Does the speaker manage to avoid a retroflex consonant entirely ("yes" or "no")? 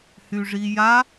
no